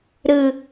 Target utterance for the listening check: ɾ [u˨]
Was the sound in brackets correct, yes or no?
no